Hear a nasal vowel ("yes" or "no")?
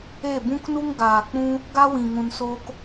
yes